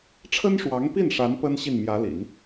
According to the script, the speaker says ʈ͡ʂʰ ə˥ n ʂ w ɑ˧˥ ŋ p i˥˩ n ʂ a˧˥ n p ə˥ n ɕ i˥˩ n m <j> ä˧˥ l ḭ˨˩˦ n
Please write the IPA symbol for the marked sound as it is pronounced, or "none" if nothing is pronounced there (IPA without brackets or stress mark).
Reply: j